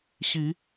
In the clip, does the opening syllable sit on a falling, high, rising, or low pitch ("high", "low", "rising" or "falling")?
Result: rising